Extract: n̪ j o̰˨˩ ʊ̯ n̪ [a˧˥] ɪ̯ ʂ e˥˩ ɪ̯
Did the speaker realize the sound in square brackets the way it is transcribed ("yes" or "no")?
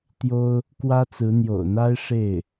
no